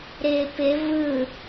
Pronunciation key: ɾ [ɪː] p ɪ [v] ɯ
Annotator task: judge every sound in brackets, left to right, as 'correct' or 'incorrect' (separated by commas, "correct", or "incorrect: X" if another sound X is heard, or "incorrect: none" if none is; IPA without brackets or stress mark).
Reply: correct, correct